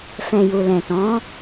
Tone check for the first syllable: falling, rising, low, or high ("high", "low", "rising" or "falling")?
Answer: low